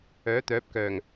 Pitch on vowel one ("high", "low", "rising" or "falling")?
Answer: rising